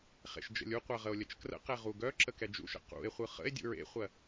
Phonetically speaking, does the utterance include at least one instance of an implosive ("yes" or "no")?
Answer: no